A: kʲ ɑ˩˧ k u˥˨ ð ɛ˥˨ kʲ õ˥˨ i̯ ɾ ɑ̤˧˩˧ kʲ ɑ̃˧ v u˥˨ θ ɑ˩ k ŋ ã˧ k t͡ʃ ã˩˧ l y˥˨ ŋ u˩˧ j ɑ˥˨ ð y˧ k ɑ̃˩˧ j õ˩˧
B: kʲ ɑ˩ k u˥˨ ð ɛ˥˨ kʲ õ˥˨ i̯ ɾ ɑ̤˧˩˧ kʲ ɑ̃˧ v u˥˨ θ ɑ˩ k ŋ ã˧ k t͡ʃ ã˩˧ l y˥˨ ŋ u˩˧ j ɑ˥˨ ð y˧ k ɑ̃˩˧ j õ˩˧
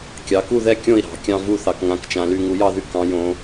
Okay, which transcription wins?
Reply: A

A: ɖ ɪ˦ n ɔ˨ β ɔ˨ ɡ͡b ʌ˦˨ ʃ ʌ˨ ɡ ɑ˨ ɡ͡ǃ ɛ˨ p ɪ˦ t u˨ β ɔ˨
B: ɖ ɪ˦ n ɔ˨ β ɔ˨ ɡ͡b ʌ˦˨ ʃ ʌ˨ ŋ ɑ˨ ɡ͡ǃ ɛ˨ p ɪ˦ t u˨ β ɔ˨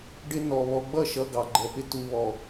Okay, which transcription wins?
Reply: A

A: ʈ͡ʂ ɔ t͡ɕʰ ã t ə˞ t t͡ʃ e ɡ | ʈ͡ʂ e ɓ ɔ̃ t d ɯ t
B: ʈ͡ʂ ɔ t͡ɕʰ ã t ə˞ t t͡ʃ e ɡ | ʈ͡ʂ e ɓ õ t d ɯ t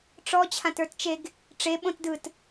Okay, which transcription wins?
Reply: B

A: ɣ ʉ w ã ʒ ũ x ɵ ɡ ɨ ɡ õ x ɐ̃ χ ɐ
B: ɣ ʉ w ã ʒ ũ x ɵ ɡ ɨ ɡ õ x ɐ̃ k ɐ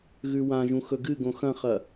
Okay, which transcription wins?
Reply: A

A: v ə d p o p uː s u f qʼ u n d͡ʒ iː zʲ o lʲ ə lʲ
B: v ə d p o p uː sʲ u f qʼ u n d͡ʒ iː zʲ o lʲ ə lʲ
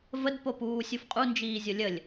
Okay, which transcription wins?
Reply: B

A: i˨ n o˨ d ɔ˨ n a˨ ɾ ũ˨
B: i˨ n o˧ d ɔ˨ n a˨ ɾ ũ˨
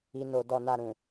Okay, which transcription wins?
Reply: A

